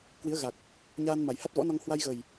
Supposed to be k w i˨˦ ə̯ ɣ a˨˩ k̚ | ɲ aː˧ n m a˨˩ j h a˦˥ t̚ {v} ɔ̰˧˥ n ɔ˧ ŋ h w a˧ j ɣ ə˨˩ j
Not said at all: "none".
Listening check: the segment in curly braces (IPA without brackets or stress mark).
v